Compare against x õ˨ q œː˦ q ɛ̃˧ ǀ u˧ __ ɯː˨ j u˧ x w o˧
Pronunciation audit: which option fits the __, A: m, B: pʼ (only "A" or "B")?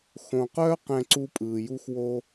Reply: B